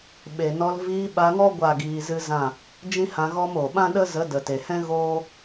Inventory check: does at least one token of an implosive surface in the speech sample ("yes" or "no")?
yes